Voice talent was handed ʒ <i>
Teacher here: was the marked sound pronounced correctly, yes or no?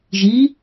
yes